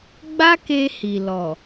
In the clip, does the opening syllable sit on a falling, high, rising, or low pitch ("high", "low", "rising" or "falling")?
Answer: high